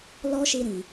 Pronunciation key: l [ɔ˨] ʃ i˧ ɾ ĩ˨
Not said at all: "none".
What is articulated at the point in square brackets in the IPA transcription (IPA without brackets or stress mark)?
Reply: ɔ˦